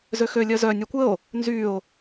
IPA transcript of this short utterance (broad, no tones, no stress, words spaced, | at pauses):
zøxø lʲœzœ nʲœkʷəo̯ | nzyo̯